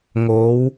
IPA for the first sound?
ŋ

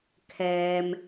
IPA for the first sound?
kʰ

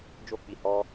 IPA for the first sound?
d͡ʒ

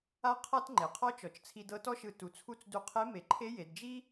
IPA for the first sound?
a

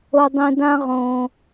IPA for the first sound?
o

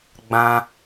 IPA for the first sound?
ɡ͡b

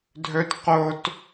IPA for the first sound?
dʱ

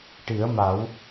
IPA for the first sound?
ʈ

